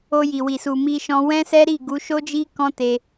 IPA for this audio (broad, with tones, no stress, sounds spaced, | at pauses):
o˧ j i˨ w i˨ s u˨ m i˧ ʃ ɔ̃˧ w ɛ̃˦ s ɛ˦ ɾ i˦˨ ɡ u˨˦ ʃ o˦ d͡ʒ i˦ k ɔ̃˦ t e˧